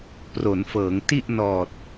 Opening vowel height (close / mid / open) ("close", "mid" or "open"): mid